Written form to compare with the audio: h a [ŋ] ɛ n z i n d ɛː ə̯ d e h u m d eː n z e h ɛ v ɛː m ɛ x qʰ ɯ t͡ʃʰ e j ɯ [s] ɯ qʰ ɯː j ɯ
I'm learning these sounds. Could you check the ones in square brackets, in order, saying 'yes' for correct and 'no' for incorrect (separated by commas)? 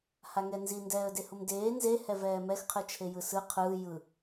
yes, yes